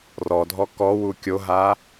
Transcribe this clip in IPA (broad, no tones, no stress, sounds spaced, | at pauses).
r ɔ dʱ ɔ k ɔ w u kʲ o ɦ a